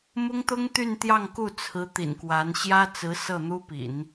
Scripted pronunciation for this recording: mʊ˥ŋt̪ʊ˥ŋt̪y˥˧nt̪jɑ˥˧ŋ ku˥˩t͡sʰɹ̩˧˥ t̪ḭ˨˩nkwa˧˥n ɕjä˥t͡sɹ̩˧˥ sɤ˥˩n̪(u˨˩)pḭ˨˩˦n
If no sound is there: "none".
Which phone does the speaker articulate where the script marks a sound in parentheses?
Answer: u˥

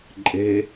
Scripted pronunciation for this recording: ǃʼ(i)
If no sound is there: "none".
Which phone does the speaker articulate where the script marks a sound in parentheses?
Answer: e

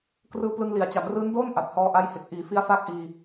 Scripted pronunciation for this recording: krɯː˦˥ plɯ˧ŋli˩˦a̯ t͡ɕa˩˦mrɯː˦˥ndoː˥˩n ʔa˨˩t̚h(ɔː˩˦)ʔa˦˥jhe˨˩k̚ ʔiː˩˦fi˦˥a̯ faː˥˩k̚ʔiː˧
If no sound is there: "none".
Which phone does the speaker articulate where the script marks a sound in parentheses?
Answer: ɔː˧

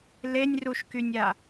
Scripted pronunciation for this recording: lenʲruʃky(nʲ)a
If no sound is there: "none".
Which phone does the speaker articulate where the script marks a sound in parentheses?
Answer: nʲ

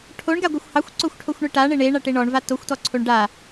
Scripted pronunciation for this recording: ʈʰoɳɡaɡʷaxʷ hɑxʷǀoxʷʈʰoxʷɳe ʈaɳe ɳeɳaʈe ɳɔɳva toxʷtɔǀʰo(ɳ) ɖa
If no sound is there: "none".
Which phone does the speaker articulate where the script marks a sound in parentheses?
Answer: ɳ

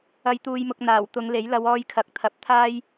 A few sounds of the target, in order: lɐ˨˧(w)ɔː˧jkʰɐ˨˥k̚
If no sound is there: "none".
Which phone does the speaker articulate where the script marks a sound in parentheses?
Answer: w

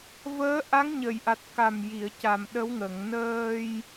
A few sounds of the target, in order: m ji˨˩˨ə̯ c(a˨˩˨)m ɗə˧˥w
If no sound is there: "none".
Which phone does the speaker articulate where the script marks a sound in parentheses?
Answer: a˨˩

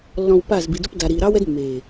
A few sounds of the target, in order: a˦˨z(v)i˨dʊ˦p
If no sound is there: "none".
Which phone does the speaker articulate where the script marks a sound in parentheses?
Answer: b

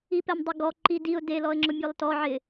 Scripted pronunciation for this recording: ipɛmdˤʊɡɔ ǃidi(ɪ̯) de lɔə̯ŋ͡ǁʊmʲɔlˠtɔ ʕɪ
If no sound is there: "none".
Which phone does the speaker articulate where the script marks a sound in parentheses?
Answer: ʊ̯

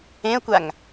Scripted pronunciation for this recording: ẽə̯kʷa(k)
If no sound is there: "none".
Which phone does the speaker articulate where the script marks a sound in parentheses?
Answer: ŋ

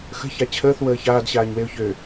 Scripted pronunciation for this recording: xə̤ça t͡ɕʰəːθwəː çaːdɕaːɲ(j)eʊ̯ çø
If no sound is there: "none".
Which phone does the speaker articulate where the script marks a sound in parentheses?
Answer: w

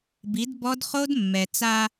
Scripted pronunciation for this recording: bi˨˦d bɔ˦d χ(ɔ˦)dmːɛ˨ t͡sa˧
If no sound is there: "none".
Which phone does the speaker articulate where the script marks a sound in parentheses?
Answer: o˦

